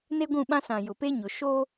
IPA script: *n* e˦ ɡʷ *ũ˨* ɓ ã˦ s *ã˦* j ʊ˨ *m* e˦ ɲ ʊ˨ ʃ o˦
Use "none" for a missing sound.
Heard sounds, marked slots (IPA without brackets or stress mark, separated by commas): n, ũ˦˨, ã˨, p